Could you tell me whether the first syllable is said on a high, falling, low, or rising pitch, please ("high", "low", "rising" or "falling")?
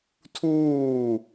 falling